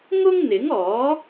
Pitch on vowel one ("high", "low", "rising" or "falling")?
high